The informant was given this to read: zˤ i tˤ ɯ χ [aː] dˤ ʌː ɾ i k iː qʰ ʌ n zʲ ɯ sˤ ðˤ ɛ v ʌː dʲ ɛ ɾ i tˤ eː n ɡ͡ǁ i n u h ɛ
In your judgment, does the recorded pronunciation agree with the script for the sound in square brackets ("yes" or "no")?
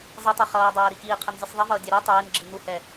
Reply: no